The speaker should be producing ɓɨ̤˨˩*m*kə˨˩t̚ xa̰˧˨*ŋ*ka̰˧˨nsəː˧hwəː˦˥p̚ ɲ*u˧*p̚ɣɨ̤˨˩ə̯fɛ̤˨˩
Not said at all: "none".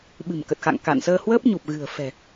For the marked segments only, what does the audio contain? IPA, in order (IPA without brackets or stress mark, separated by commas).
m, ŋ, u˨˩